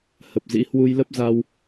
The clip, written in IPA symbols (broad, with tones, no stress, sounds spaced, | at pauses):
h ə˨˩ p̚ z ḭ˧˥ h w u˧ j l ə˦˥ p̚ z a˧ w